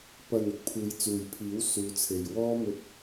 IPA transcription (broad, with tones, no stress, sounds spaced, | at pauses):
p ɐ˨ n ɪ˨˥ k̚ pʰ uː˨˧ j t͡s uː˨ j pʰ iː˨˥ w s uː˨˧ t͡sʰ e˨ j w ɔː˧ m ɵ˥ t̚